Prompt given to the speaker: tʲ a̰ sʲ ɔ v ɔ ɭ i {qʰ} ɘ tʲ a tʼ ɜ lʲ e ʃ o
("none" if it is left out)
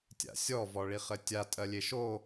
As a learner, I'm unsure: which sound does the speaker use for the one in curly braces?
χ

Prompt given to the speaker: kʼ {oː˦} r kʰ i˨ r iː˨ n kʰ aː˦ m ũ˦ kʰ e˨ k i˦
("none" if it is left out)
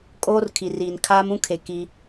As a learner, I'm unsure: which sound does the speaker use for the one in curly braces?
oː˦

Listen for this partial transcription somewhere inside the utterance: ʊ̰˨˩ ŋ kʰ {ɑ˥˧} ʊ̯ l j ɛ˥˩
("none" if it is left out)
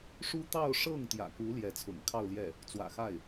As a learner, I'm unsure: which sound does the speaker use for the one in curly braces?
ɑ˥˧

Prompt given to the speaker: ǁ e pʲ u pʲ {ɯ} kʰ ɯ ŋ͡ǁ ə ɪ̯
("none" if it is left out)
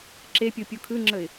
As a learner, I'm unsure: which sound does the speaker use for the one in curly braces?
u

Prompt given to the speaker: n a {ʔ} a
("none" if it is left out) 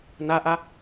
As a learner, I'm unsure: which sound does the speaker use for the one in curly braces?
ʔ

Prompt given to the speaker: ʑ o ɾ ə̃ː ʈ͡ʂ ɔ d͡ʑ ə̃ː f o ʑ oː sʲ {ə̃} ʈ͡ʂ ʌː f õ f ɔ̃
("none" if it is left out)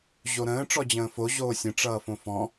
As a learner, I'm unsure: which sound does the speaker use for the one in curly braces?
ə̃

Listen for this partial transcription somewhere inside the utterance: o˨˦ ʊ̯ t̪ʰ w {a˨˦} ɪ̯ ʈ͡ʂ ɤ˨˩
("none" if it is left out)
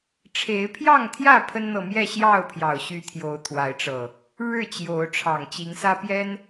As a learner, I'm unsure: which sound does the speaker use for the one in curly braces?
a˨˦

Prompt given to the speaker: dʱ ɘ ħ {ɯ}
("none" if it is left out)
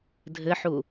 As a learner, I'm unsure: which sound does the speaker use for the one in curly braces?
u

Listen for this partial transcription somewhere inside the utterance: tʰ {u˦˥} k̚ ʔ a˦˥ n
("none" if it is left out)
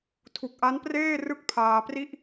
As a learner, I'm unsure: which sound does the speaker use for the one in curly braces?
u˨˩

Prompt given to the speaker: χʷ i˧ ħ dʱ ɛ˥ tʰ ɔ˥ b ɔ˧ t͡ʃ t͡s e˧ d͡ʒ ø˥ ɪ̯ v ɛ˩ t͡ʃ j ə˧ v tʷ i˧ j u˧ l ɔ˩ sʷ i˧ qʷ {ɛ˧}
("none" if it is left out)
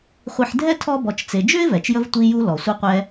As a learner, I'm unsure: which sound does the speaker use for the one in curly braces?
ɛ˧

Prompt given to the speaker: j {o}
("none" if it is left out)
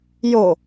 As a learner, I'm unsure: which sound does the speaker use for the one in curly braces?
o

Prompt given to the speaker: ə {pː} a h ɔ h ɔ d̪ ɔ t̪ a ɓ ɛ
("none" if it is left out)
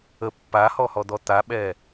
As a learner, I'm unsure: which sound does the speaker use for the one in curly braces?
pː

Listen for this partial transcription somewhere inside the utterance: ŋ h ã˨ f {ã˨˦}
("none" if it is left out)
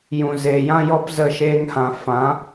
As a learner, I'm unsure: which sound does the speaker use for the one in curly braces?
ã˨˦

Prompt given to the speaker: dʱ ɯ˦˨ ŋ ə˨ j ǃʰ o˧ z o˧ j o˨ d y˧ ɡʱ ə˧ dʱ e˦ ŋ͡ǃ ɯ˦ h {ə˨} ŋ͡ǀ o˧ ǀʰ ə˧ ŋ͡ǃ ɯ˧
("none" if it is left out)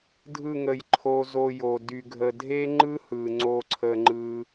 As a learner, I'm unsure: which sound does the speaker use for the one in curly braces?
ɯ˨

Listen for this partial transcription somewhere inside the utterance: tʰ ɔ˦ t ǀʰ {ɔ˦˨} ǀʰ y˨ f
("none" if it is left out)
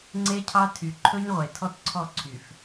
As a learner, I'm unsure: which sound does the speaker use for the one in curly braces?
ɔ˦˨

